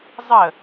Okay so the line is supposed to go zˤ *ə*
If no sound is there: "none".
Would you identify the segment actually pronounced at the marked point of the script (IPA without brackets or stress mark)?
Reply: ə